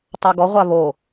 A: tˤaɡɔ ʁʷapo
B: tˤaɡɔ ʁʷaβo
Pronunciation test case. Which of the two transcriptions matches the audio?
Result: B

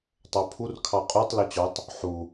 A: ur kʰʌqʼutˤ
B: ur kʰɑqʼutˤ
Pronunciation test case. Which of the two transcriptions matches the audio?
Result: B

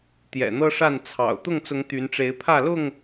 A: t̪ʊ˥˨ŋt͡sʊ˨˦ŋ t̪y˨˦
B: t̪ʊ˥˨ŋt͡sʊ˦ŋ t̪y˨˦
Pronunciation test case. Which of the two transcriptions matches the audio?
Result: A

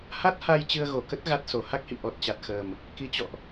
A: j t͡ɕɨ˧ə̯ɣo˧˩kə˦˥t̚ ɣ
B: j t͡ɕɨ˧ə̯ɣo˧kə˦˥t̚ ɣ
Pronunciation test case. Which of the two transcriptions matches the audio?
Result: A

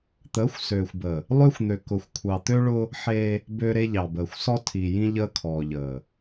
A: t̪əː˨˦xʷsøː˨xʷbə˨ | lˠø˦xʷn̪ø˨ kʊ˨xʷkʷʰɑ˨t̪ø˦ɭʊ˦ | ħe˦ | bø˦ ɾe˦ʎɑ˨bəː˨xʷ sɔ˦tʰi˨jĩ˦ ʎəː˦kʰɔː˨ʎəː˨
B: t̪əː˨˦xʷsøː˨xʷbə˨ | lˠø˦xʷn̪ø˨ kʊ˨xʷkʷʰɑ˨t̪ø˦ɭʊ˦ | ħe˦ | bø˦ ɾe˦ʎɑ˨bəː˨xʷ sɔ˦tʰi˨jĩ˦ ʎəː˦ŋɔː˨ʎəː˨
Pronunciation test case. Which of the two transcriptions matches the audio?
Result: A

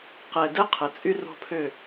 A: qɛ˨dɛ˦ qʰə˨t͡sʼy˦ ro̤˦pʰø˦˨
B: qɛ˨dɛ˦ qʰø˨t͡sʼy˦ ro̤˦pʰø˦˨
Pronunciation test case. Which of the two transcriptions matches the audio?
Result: A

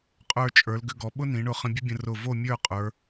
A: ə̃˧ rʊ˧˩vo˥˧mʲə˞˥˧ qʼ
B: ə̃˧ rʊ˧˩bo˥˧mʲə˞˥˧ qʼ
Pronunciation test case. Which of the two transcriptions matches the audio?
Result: A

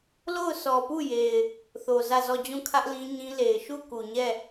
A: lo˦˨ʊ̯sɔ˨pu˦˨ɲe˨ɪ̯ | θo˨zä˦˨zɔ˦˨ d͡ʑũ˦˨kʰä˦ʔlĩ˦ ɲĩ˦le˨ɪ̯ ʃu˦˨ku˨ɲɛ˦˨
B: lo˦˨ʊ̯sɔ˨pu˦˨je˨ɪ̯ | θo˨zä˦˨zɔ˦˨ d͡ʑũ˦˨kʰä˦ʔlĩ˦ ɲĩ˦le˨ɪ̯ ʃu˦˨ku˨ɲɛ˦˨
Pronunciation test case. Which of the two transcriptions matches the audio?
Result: B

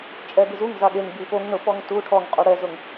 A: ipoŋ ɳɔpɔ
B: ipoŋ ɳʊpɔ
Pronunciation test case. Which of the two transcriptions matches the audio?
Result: B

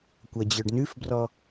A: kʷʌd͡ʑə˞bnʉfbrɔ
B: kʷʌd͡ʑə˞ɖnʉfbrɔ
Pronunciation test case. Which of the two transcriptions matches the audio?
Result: B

